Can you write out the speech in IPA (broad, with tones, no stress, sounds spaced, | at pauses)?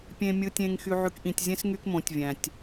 pʲ ẽ˨ mʲ ɯ˨ tʲ ẽ˨ ŋ x y˨ ʕ y˨ k ʔ ĩ˨ tʲ zʲ ẽ˦ s ŋ y˦ k m õ˨˦ tʲ vʲ æ̃˨ tʲ